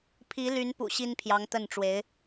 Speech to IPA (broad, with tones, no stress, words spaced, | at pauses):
pʰi˧˥ly˧˥npṵ˨˩ ɕi˥npʰjɑ˧˥ŋt̪ə˥˩nʈ͡ʂwe˧˥ɪ̯